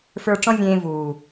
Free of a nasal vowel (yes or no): no